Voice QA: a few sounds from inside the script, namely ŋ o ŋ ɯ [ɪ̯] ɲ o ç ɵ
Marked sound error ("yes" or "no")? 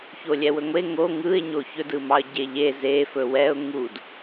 no